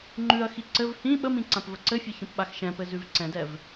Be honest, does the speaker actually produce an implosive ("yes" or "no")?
yes